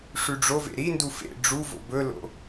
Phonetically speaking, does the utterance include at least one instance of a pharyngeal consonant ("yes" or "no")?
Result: no